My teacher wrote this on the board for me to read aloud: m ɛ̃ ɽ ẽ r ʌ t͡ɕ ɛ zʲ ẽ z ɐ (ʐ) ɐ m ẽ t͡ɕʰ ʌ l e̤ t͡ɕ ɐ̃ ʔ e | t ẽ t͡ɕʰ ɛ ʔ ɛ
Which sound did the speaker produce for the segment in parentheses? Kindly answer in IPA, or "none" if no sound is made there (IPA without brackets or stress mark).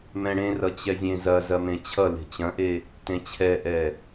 z